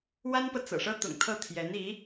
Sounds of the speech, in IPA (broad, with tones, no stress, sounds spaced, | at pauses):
w a˥ n p ɤ˨ t͡s ɤ̰˨˩ ʂ ɤ˥ t̪ ʊ̰˨˩ ŋ t̪ʰ ɤ˥˩ t̪ʰ j ɛ˧˥ n i˧˥